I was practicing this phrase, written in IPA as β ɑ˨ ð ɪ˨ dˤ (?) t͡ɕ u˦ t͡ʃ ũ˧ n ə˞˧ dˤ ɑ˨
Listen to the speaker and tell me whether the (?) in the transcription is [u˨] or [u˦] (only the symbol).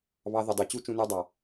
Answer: u˨